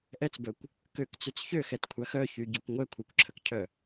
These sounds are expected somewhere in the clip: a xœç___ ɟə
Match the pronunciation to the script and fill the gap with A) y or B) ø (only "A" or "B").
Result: A